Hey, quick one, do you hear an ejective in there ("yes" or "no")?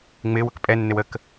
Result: yes